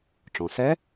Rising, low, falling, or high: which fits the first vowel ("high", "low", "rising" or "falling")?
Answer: low